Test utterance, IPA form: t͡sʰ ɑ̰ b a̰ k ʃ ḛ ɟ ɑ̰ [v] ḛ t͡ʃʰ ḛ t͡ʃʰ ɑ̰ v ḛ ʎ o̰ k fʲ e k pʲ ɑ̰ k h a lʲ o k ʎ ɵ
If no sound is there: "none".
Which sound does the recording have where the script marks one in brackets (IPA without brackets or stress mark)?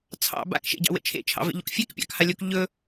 w